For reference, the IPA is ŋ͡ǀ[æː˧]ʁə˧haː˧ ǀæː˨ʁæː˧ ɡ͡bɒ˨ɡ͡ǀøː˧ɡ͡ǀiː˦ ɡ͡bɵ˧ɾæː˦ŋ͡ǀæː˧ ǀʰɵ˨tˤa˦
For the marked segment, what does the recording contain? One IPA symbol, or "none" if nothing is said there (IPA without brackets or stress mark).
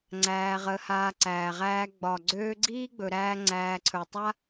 æː˧